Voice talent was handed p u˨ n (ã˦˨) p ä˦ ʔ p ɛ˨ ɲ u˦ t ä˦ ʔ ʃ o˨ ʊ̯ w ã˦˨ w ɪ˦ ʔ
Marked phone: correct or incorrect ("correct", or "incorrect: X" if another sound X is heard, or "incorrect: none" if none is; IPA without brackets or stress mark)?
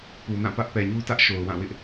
correct